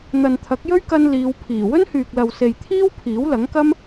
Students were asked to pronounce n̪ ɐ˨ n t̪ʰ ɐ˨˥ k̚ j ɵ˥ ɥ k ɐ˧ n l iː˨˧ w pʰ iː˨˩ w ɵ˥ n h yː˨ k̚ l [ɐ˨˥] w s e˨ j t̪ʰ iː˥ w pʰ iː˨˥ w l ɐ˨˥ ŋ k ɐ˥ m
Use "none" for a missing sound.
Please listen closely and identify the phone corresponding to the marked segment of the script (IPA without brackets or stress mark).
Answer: ɐ˨